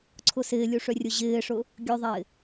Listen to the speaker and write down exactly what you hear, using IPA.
ǀʰ ʊ s ɪː lʲ u ʂ ø rʲ ʊ ʑ ɪː ʂ ʊ | ɡʲ ø ðˤ ɪː

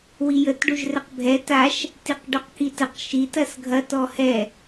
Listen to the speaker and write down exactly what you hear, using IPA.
w i j ə t ɖ u ʒ r ɛ q bʱ ɛ t a ʃ | t i q ɖ u q k i t ə q ʃ i t ɐ s ɡʱ ɐ t ɔ h ɛ

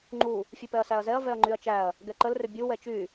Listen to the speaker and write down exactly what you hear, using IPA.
ŋ͡ǃ u | fʲ u p ɛ ɐ̯ s æ ɐ̯ z ɛ ɐ̯ v ɛ ɐ̯ ŋ͡ǃ y ɐ̯ t͡ʃ æ ɐ̯ | ɡ ɛ ǃ ə l r ʏ bʲ u w ɛ t͡ʃ y

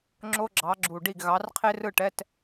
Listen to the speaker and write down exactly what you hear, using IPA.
ŋ͡ǁ o˥ ɡ͡ǁ ɑ˨˦ ɡ͡ǁ u˨˩ ɖ i˥˨ ɡ ɣ ɑ˨˦ r qʰ e˥ r ɯ˥˨ ʈ ɛ˧˥˧ t

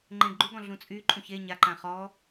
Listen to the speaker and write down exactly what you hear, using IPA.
ŋ͡ǃ ẽ ɡ ɡ͡ǃ ʉ ɡ ɔ̃ ɮ ũ t͡sʼ y ǃʼ ũ ç e ɲ a ǃ ã χ ɔ

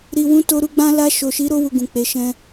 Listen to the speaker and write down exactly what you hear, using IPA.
ɾ i˨ w ũ˨˦ t o˧ ɾ u˧ ɡ͡b ã˧ l a˧ ʃ o˨ ʃ i˨˦ ɾ o˧ w u˨ ɡ ũ˨ k͡p e˨˦ ʃ ɛ̃˧

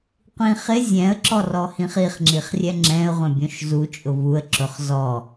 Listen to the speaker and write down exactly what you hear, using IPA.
qʷ ĩ χ ɪ zʲ ɛ̃ ə̯ ǁ ɔ r ɔ h ĩ χ i χ ŋ͡ǁ i χ rʲ ɛ ŋ͡ǁ ɛ̃ ə̯ ʁʷ ɛ̃ bʲ õ ʃ z u t͡ʃʼ ʊ v u ə̯ ǁ ʊ χ z ɔ

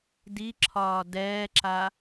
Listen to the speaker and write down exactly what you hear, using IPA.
d i ǁʰ ɒː d ɛː ǁ a

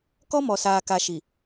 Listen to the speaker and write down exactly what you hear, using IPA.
k ɔ˦ m ɔ˨ s aː˨ k a˨ ʃ i˨

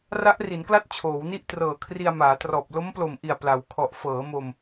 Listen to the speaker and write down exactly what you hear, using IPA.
r a˦˥ ʔ r i˩˦ n k l a˥˩ t̚ t͡ɕʰ oː˩˦ w n i˥˩ ʔ t r ɤː˨˩ kʰ r i˧ a̯ m aː˩˦ t r ɔː˨˩ p̚ l o˦˥ m p l o˨˩ m ʔ i˨˩ a̯ p l a˩˦ w kʰ ɔ˨˩ ʔ f ɤː˩˦ m o˧ m

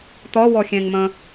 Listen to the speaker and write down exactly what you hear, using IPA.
t̪ ɒ w ɔ xʲ ẽ ŋ m ə̃

